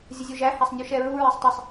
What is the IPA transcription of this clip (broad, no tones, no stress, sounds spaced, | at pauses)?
zʲ ə zʲ u ʒ æ h a sˤ nʲ u ʃ ɛ ɹ u ɹ æ sˤ tˤ ə sˤ